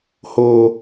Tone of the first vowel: high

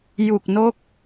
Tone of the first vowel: low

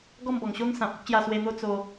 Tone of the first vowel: falling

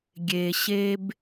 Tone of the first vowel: low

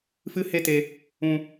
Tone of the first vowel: high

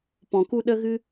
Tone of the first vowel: low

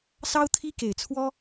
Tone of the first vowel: high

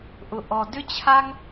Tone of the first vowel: low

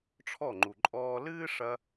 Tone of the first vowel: falling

